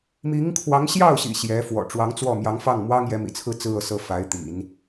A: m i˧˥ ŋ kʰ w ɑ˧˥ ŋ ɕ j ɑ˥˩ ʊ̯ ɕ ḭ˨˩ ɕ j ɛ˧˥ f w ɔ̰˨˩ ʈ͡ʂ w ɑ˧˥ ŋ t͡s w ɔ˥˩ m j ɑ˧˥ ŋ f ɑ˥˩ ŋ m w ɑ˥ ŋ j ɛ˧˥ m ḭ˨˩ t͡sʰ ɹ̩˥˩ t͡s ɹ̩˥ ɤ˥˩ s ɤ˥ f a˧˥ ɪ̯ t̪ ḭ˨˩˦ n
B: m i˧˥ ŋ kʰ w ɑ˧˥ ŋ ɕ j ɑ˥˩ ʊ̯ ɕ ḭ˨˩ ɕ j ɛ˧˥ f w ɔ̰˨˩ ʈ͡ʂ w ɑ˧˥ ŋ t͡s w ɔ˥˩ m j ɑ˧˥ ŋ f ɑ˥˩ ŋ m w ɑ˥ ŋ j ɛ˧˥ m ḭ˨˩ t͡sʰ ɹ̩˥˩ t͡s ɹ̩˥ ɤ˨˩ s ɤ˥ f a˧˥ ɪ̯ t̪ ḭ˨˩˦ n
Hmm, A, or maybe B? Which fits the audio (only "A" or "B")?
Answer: A